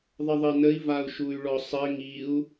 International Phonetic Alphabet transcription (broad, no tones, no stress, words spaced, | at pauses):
ðˤəðˤɘnəi̯ vau̯ʃuy̯ɭɔsˤɘ ŋiu̯